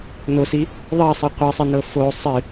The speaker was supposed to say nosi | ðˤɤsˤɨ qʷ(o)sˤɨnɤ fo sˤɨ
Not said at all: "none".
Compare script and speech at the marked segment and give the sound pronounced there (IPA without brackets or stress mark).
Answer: ɤ